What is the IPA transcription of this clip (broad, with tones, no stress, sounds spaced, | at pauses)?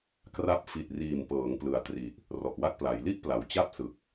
k r a˥˩ p̚ f i˨˩ t̚ r iː˨˩ m p ɤː˩˦ ŋ p l ɯ˨˩ a̯ t r i˨˩ ʔ | r ɔ˨˩ ʔ w a˥˩ k̚ p l a˩˦ j l i˥˩ ʔ p l a˩˦ w t͡ɕ a˥˩ p̚ s ɯ˨˩ k̚